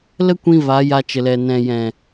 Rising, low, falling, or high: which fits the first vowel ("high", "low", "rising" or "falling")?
high